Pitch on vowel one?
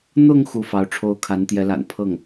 falling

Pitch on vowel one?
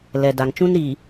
low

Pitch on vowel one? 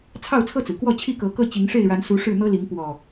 falling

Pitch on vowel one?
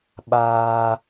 high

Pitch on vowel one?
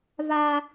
high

